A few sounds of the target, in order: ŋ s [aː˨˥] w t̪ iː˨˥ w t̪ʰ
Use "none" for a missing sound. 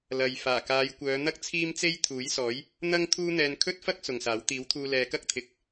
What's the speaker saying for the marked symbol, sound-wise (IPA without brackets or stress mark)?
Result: aː˨˥